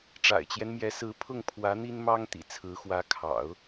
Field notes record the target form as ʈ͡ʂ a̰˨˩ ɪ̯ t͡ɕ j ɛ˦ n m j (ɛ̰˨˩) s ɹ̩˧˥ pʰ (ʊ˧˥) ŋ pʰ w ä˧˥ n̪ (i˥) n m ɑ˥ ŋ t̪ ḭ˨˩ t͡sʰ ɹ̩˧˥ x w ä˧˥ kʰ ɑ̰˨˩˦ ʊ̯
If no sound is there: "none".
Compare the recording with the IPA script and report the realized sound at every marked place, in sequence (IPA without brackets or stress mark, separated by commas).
ɛ˧˥, ʊ˥˩, i˥